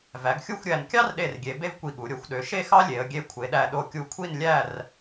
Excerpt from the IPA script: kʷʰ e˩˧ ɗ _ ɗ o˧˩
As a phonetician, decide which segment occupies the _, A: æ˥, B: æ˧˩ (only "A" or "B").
B